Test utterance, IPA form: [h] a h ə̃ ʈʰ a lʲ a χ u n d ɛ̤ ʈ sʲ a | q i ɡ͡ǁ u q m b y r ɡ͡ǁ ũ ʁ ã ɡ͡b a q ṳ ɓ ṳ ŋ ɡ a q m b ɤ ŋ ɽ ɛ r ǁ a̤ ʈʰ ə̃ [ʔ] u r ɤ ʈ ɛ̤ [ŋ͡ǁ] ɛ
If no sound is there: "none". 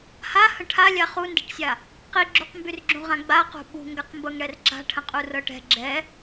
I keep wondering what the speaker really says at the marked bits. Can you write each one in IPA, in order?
h, qʼ, ɡ͡ǁ

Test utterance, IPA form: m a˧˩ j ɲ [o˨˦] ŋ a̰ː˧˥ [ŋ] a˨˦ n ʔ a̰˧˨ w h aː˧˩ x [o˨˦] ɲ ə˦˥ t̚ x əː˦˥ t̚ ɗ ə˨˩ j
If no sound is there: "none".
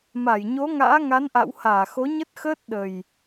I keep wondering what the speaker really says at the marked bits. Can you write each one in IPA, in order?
o˨˦, ŋ, o˨˦

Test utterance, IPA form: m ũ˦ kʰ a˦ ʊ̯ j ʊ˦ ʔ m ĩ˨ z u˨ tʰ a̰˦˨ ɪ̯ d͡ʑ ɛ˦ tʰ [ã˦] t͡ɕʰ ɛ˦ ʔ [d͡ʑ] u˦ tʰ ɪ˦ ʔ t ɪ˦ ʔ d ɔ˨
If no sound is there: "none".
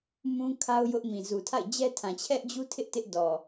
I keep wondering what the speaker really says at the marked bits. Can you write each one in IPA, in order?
ã˨, d͡ʑ

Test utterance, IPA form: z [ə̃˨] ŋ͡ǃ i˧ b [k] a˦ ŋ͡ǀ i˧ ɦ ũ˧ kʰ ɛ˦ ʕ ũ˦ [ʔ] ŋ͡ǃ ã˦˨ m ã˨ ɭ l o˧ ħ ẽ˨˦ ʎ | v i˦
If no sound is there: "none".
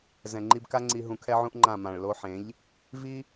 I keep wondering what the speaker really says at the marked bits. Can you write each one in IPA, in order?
ɛ̃˨, k, ʔ

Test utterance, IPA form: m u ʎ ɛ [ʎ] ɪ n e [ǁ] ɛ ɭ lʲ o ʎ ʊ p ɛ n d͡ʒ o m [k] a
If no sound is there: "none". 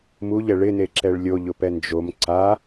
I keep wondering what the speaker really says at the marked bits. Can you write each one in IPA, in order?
ɭ, ǁ, ǀ

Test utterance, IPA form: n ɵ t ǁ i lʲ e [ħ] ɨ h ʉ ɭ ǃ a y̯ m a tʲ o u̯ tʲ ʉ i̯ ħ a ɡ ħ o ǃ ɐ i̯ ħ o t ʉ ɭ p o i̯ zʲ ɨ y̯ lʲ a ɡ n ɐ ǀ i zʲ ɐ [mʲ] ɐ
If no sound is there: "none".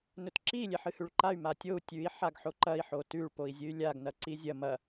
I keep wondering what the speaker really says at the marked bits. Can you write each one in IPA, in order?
ħ, m

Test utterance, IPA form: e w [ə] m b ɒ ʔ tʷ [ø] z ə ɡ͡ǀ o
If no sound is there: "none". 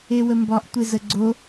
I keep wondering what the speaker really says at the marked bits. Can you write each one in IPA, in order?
ə, e

